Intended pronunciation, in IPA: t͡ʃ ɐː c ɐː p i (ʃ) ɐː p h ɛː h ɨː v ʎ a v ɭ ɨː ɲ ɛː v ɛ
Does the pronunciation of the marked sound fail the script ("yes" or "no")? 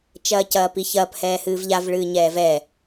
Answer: yes